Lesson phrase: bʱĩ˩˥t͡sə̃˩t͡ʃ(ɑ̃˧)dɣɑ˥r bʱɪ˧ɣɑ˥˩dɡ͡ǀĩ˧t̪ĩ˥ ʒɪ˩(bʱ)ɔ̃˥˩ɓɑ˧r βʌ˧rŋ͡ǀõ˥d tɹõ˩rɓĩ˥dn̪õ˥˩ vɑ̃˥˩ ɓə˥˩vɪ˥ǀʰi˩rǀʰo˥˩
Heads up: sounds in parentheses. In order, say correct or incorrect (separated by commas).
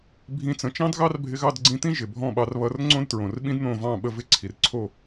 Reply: incorrect, correct